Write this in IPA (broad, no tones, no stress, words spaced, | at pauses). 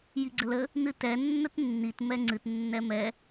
jiɡ͡ǀələ | nɨtɛ nːətnːit mɛŋ͡ǀɨt nːɛmɛ